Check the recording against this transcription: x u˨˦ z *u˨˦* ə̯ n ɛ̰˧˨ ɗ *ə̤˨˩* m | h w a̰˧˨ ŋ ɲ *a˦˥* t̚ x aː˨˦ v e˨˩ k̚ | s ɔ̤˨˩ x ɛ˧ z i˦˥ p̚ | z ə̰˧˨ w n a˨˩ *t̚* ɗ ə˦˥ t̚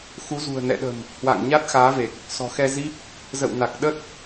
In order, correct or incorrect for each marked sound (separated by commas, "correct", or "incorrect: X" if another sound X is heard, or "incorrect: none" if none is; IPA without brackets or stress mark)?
incorrect: ṳ˨˩, correct, correct, incorrect: k̚